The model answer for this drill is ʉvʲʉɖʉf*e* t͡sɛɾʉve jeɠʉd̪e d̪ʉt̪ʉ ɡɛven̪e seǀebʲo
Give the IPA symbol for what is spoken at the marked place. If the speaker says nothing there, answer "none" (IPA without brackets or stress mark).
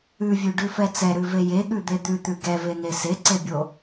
ɛ